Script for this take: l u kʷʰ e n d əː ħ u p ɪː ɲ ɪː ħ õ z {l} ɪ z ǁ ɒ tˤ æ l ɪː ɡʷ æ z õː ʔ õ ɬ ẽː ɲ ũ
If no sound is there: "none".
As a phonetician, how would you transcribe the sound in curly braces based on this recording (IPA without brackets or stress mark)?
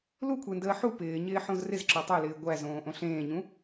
r